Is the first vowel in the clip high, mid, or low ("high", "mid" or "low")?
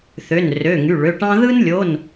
mid